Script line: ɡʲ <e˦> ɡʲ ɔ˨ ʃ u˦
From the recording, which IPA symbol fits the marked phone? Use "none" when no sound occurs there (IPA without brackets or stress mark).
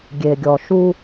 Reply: e˨